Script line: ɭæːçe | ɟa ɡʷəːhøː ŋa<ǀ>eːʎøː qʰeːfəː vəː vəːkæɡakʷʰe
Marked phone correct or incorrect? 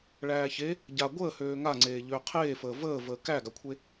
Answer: incorrect